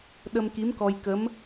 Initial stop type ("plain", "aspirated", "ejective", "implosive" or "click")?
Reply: implosive